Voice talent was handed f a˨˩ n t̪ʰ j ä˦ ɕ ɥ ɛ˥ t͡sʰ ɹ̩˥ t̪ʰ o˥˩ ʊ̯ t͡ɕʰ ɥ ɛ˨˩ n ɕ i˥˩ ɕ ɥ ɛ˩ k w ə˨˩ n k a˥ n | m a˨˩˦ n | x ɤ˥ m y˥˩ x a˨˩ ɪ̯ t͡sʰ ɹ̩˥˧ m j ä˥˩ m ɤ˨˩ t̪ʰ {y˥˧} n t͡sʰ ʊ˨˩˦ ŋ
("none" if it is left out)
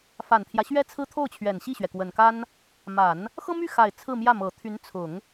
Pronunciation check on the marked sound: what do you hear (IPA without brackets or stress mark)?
y˧˥